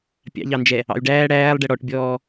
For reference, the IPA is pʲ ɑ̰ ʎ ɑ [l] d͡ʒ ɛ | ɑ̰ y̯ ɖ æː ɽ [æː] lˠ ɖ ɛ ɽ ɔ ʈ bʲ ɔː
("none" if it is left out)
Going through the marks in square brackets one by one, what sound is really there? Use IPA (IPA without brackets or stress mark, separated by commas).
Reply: n, æː